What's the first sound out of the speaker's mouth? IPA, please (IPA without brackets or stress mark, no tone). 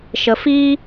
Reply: ʃ